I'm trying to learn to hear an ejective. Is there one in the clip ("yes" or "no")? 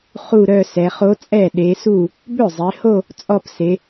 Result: yes